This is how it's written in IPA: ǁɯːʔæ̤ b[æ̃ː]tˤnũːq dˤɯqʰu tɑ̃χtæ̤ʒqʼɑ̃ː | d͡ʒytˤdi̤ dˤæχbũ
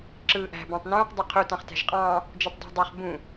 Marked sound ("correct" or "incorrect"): incorrect